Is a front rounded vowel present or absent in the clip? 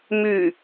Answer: present